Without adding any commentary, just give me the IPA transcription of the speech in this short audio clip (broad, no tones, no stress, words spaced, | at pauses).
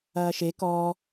ɐːʃe kɔː